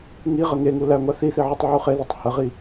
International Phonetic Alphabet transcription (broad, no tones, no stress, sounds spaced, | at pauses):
ŋ i ʁ ə ŋ e ŋ u l æ ŋʷ a θ i θ i ʕ u tˤ ʕ u χ e ð i tˤ h ə ʁ i